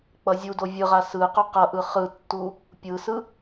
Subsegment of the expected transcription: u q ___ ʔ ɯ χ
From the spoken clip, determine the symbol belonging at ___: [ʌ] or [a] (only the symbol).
ʌ